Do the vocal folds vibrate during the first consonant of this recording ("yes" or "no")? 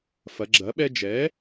no